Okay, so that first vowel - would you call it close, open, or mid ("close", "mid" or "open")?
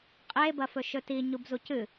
mid